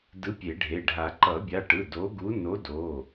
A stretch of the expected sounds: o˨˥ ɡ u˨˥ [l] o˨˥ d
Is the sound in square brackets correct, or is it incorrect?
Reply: incorrect